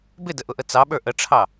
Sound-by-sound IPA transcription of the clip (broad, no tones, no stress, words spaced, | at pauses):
bɪdəʔʊʔə t͡sɑɓə˞ ʔəʈ͡ʂʰɑ